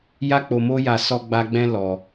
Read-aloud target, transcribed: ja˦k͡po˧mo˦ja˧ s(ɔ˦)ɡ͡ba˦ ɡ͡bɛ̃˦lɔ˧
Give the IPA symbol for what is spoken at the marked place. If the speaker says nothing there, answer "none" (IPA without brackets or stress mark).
ɔ˦